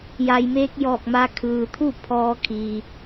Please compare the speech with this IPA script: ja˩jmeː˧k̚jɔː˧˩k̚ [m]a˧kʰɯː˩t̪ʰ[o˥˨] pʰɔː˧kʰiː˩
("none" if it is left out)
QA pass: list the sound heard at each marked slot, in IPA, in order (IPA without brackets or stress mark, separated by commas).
m, u˥˨